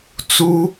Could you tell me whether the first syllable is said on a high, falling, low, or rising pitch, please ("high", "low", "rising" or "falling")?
high